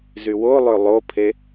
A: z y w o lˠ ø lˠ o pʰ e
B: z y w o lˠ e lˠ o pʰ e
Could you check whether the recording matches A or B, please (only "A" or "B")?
A